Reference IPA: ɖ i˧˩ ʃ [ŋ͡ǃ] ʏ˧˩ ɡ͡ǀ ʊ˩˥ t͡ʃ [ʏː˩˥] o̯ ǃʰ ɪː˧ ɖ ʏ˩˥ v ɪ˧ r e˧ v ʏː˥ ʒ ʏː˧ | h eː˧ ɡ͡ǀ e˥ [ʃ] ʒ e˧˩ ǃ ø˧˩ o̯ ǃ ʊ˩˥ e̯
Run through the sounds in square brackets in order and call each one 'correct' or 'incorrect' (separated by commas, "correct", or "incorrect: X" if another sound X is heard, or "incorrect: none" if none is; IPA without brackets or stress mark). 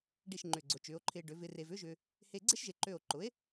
correct, correct, correct